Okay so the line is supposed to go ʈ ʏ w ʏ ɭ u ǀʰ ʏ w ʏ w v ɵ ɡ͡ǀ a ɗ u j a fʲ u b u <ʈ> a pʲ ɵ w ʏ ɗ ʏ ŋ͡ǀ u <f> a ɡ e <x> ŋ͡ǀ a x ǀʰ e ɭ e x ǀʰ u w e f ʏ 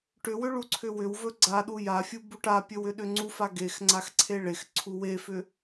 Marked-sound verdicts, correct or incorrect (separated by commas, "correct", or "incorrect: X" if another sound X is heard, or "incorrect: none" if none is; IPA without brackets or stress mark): correct, correct, correct